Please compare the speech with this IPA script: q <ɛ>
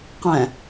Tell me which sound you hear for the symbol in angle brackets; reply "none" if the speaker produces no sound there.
ɛ̃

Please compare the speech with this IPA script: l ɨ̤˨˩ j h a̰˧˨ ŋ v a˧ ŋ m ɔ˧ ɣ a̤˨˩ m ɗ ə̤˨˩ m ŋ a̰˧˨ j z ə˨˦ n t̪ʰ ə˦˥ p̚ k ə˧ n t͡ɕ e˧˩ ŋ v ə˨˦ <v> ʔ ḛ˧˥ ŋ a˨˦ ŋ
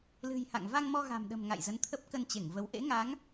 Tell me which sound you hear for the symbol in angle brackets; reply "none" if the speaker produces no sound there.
w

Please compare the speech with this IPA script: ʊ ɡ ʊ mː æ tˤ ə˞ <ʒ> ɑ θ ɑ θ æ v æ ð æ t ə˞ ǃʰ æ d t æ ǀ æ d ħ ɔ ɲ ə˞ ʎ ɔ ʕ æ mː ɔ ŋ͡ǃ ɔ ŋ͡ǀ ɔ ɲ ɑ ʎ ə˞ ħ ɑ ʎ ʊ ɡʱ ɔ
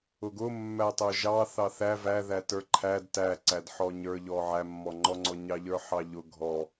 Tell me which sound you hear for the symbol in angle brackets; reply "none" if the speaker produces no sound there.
ʒ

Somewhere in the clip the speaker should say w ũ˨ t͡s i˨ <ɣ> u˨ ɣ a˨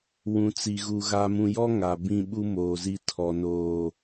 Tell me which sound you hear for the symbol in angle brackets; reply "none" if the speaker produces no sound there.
ɣ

